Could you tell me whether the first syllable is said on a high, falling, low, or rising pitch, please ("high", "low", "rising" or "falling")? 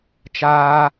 high